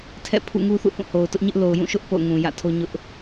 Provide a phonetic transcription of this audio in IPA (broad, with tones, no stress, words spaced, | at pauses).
tʰɛ̰˦˨ pʰṵ˦˨ ŋu˦θṵ˦˨hũ˦˨ho˨ʊ̯ tʊ˦ʔɲɪ˦ʔ lo˨ʊ̯jũ˦˨ʃʊ˦ʔ po̰˦˨ʊ̯ ŋũ˨jä̰˦˨tʰo˦ ɲʊ˦ʔ